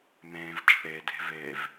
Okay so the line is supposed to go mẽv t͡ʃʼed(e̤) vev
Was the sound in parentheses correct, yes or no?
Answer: yes